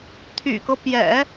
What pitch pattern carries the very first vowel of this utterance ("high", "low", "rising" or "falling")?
low